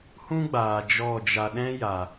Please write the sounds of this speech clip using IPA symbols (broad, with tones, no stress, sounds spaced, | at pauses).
h ũ˦ ɡ͡b aː˨ d͡ʒ ɔ˦˨ d͡ʒ a˧ ɗ ɛ̃˦ j a˨